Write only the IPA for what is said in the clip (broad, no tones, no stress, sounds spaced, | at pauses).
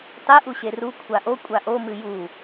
tˤ i ʔ u ɕ e r u kʷʰ a ʔ o kʷʼ a ʔ o m ɨ j u